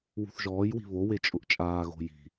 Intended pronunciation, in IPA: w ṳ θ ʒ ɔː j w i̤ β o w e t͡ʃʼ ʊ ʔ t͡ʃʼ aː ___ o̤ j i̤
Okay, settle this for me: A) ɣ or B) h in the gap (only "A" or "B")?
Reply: A